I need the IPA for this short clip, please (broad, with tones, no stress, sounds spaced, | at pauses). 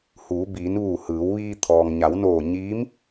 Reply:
h uː˩˧ b iː˩˧ n ʋ uː˧˩ h ɯː˩˧ w ʋ iː˧ t̪ʰ ɔː˩ ŋ ɲ a˩˧ w n oː˧˩ ɲ iː˧˥ m